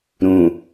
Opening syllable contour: low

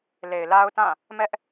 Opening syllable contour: low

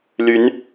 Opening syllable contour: rising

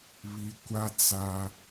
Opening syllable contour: low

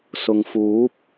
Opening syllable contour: low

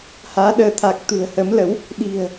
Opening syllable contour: rising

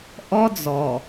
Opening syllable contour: high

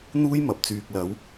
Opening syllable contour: high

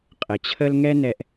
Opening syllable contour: low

